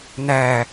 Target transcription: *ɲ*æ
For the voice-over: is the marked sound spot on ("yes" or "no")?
no